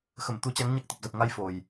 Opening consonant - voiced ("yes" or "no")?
no